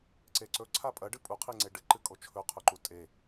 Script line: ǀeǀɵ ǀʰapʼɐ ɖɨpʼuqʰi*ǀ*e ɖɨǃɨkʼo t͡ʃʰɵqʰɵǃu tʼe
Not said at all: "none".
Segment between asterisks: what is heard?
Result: ŋ͡ǀ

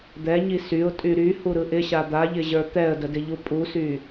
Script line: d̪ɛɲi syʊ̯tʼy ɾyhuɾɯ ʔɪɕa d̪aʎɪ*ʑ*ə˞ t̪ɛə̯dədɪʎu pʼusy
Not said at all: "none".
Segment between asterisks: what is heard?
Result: ʑ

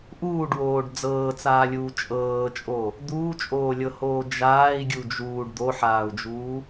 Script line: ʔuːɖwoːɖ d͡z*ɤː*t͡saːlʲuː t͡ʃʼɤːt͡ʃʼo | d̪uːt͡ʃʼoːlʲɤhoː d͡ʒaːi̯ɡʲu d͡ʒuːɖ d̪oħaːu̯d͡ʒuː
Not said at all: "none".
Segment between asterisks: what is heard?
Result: ɤː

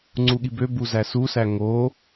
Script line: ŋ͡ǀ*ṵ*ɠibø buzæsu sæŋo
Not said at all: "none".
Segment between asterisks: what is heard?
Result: u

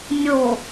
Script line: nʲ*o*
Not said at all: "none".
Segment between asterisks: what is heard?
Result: o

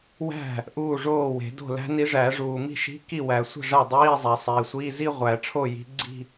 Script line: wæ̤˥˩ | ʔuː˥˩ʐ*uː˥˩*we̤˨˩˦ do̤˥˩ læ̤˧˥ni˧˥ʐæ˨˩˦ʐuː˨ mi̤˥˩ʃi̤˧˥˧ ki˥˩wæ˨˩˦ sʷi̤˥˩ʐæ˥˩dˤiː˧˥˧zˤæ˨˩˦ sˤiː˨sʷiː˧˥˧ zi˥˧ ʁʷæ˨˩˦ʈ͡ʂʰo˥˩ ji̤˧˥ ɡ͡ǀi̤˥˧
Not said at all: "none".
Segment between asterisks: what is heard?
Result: oː˥˩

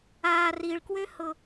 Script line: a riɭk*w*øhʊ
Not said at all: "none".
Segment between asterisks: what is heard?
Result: w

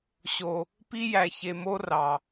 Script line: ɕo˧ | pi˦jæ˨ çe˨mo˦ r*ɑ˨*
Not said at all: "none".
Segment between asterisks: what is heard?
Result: ɑ˨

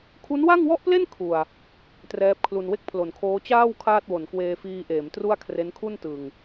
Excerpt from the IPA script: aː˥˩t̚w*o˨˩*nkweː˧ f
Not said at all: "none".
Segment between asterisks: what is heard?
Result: o˩˦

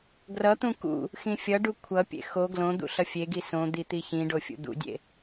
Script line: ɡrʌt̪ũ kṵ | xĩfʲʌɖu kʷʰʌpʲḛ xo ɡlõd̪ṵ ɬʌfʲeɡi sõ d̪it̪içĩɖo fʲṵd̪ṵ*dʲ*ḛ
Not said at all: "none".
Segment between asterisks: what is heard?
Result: dʲ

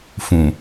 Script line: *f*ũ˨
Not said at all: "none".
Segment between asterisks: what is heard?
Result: f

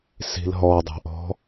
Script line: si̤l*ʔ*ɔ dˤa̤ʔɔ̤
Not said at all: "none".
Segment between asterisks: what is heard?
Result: ɦ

